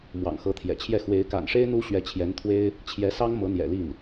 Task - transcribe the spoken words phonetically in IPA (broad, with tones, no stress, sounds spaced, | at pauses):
m w ɑ̰˨˩ ŋ x ɤ˧˥ t̪ʰ j ɛ̰˨˩ t͡ɕʰ j ɛ˥˩ x w e˧˥ ɪ̯ k a̰˨˩ n ʂ e˥ ɪ̯ n̪ u˥ ɕ ɥ ɛ˧˥ t͡ɕʰ j ɛ˧˥ n t̪ʰ w e˥ ɪ̯ | t͡ɕʰ j ɛ˧˥ s ɑ˥ ŋ m ɤ˧˥ n̪ j ɛ̰˨˩ l i˥˩ n